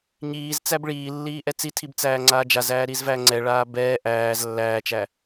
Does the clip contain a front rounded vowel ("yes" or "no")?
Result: no